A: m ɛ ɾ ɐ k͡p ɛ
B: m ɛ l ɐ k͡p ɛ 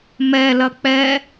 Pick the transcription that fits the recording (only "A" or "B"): B